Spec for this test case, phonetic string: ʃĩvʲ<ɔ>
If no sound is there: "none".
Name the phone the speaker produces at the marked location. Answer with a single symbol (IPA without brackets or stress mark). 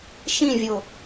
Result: o